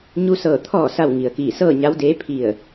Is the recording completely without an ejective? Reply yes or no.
yes